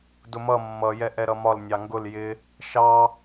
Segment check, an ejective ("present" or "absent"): absent